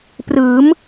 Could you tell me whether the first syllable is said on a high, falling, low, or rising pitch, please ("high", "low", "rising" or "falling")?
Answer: rising